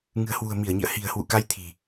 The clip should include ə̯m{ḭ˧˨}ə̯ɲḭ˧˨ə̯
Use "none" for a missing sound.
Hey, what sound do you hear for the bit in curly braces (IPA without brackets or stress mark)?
i˧˩